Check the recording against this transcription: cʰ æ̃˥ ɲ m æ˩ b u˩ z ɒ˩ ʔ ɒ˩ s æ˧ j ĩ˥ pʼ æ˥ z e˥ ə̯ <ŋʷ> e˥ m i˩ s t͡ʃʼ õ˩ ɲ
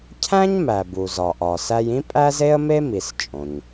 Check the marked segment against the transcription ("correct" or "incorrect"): incorrect